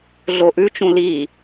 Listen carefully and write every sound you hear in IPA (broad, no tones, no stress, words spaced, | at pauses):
ɮoʔʉt͡ʃũ li